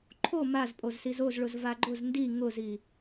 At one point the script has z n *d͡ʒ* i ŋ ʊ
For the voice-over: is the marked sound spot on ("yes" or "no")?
no